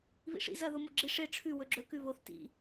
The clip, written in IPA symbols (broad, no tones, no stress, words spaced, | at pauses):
βḭʂḭ zɐ ðomoɡ͡ǁi ʂe ʈ͡ʂʰʉ wɵɡ͡ǁɵ kʉβoθ tḭ